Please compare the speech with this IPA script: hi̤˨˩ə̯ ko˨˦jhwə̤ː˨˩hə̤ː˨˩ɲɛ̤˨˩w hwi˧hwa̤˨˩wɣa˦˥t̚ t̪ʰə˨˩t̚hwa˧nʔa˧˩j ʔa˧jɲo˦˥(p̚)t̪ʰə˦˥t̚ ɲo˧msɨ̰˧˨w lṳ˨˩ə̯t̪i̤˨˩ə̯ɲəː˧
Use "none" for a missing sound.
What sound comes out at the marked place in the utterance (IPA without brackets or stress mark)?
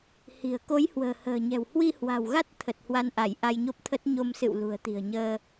p̚